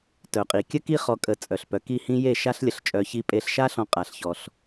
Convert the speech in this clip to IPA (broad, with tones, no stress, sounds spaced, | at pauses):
t œ˨ qʼ i˨ kʲ ə˦ k i˦ χ ɔ˧ kʼ ə˨˦ t͡sʼ œ˨ ɬ p œ˨ k i˦˨ h ĩ˦ j e˦˨ ʃ a˦ ɬ lʲ ə˧ ɬ t͡ʃʼ œ˧ ç i˧ pʼ e˧ ɬ ʃ a˦ ɬ ɔ̃˧ qʼ a˧ ɬ ç ɔ˧ ɬ